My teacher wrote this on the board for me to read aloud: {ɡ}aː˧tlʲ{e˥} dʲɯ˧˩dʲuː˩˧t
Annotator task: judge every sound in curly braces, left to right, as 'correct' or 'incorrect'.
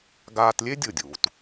correct, correct

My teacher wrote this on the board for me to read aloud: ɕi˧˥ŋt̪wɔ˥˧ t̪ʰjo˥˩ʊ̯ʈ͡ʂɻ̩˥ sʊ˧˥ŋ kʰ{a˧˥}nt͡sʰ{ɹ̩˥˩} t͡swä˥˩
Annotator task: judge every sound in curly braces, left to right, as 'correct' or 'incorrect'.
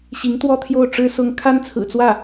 incorrect, incorrect

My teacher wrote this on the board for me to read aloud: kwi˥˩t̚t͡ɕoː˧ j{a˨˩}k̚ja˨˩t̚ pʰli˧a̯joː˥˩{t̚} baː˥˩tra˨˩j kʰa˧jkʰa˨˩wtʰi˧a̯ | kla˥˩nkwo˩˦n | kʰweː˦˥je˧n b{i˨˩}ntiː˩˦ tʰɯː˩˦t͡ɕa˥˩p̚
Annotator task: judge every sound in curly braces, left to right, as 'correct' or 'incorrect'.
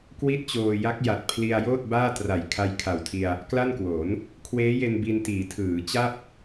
incorrect, correct, incorrect

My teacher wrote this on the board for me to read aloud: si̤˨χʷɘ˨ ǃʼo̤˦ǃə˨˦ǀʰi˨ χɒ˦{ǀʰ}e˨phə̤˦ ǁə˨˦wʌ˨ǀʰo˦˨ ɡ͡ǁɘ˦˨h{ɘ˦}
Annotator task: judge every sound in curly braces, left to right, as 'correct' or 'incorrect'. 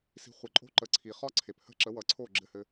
correct, correct

